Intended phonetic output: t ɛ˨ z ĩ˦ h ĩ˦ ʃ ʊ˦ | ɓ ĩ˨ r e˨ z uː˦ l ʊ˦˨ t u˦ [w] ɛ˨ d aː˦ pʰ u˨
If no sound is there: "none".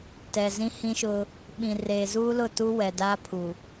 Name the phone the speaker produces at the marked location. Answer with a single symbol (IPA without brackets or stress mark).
w